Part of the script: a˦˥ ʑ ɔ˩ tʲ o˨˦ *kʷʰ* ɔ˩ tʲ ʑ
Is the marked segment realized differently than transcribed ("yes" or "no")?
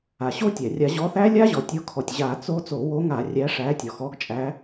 yes